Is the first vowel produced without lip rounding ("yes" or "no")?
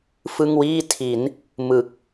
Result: yes